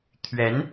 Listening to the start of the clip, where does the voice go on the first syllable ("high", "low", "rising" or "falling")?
rising